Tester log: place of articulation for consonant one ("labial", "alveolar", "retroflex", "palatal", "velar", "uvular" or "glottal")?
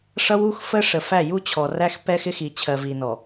retroflex